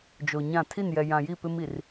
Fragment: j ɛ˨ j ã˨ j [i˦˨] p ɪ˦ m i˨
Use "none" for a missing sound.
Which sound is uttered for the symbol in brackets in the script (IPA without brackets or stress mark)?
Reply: i˦˨